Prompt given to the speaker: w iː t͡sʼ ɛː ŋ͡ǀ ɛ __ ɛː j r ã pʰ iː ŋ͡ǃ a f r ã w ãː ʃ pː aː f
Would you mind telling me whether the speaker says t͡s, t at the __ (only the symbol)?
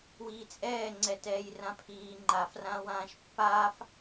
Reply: t